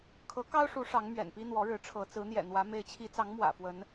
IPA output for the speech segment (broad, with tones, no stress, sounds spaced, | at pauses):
kʰ ɤ˨˦ k ɑ˦ ʊ̯ ʂ u˨˦ ʂ ɑ˨˦ ŋ m ɥ ɛ̰˨˩ n p i˦ n̪ w ɔ˨˦ ɻ ɻ̩˨˦ ʈ͡ʂʰ ɤ˨˦ t͡s ɹ̩˨˦ n̪ j ɛ̰˨˩ n̪ w ä˨˦ m e˨˦ ɪ̯ t͡ɕʰ i˨˦ t͡s ɑ˨˦ ŋ m w ä̰˨˩ f w ə˨˦ n